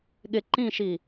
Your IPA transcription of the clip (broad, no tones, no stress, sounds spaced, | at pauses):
ɠ ɪ ǃ ĩ ʃ i